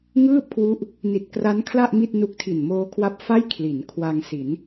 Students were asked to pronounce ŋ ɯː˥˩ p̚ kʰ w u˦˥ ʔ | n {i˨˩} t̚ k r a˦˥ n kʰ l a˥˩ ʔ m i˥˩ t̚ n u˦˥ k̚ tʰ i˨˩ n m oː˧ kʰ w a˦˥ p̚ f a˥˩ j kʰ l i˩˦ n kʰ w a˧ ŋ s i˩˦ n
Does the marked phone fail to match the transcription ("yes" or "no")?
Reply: no